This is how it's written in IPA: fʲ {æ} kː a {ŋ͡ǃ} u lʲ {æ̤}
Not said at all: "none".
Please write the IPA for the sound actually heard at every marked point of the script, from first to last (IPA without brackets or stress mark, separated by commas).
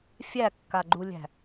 æ, ɡ͡ǃ, æ̤